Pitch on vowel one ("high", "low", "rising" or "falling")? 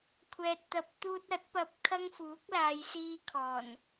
low